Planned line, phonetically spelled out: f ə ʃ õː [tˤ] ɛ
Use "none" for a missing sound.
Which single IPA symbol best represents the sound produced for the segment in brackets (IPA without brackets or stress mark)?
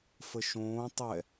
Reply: tˤ